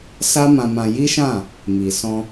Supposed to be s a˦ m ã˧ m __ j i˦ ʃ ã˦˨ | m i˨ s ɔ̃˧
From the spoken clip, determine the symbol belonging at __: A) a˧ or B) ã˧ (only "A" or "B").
B